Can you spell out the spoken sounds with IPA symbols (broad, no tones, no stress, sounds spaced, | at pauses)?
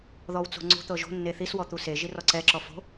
ð ɔ w t͡s o̤ ŋ͡ǀ o̤ t̪ ɤ ʒ o̤ nː e θ i s w ɔ t̪ u s e ʒ i r ɔ ǀ ɛ ǁ ɔ f o̤